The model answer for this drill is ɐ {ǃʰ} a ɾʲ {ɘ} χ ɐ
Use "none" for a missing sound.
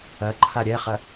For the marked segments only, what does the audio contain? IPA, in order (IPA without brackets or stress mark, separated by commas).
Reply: ǃʰ, ɛ